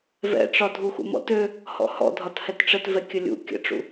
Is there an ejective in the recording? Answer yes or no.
no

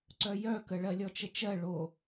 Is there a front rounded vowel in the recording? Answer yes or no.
yes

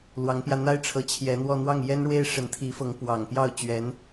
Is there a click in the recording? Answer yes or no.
no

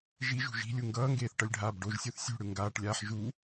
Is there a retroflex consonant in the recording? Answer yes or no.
yes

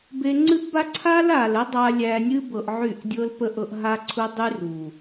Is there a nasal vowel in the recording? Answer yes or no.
no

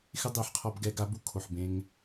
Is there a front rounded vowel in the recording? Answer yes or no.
no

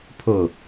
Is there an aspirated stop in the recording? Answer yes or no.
yes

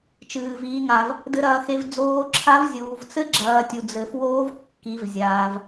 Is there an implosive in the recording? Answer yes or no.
no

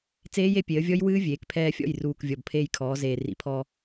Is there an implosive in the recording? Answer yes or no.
no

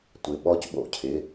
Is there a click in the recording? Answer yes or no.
no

